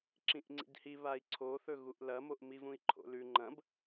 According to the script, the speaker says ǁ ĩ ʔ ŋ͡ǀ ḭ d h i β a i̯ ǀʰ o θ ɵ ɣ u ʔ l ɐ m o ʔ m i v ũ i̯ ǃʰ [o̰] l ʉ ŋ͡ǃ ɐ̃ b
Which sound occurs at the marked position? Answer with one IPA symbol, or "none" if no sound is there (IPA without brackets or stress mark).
o̰